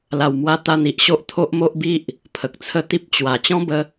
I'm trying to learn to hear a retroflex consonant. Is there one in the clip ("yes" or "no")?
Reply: no